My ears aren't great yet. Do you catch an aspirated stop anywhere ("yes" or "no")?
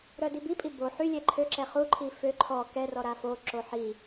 yes